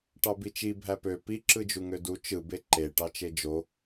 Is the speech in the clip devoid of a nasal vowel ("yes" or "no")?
yes